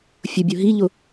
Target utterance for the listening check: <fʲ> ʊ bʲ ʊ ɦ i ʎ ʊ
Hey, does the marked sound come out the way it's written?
yes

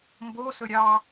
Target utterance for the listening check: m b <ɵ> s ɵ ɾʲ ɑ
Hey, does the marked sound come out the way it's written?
no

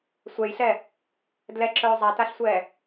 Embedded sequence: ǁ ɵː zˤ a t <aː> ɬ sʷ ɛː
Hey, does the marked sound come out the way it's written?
no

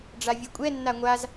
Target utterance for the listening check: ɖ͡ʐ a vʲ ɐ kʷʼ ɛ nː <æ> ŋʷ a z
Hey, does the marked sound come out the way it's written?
no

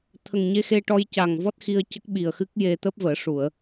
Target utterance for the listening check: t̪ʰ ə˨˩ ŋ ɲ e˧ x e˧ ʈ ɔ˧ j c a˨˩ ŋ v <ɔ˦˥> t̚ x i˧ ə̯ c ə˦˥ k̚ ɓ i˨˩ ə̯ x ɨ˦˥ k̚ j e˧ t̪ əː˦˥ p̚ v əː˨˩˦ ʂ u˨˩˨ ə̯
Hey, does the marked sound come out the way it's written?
yes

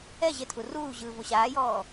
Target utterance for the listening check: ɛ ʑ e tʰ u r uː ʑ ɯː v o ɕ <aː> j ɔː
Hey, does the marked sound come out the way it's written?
yes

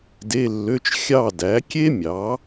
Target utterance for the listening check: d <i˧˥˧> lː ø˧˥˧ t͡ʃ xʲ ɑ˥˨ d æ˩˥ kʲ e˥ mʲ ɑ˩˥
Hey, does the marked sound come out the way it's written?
no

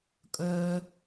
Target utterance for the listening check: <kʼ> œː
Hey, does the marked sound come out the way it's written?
yes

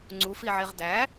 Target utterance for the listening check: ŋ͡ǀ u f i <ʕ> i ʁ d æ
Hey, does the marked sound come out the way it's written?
yes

